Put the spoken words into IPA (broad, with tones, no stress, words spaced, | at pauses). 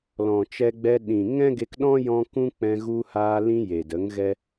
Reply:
lɔ̃˨t͡ʃɛ˧ɡ͡bɛ˧ ɗĩ˨ ŋɛ̃˦ɡe˧kɗɔ̃˦ jɔ̃˦ kũ˦k͡pɛ̃˧ ɣu˧haː˧lĩ˧ je˨də˨˦ŋ ɣɛ˦